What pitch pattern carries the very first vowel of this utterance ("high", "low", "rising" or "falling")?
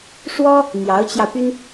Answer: high